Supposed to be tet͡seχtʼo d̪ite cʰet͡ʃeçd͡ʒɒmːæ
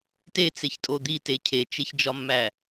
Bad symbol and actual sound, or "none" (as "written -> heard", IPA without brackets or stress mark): χ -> ç